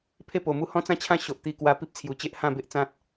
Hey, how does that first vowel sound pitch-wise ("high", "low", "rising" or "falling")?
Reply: falling